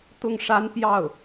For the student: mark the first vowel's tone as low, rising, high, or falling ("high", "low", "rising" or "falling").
falling